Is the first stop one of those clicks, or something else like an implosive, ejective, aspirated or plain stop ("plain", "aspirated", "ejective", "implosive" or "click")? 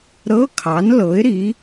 aspirated